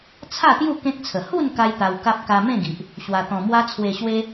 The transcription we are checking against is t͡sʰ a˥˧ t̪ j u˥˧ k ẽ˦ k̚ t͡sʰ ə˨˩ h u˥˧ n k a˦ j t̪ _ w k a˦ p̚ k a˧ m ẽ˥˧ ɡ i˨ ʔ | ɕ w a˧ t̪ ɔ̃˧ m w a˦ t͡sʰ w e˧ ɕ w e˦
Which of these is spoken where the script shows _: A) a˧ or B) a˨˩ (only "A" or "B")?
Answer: A